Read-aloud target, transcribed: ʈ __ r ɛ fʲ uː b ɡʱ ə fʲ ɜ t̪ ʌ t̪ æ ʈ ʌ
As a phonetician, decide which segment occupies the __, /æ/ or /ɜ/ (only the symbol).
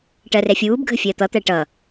ɜ